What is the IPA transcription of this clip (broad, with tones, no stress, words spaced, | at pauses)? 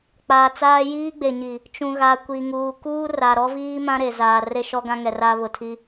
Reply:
k͡paː˨t͡saː˦ jiː˦ɡ͡be˨ɲi˨ | t͡ʃũ˨ɣa˨kʷi˨ŋuː˨ kuː˦ra˨ɾɔ˦viː˦ mã˦ɾe˨zaː˨ re˦ʃɔ˦ɡã˦ŋɛ˨ ra˦ βʊ˨tʰi˦